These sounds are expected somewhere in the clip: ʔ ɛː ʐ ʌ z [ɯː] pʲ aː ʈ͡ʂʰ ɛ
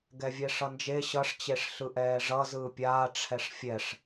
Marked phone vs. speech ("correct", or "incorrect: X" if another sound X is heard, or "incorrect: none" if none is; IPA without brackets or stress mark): correct